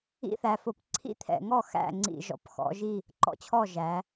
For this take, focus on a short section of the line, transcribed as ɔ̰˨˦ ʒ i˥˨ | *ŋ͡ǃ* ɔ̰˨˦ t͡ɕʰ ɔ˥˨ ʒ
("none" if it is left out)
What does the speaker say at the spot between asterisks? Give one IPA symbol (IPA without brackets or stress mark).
ǃ